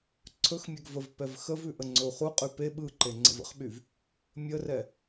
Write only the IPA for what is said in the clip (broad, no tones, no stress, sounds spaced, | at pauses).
ǀʰ ɵ x mʲ ɛ ɡ v ə v p ɛ v x ə v ʉ ʔ ə ŋ͡ǀ ɵ u̯ χ u qʼ y p e ɓ ɯ ǃ e ŋ͡ǀ ə̰ v ə̰ χ ɓ y v | mʲ ə r ɛ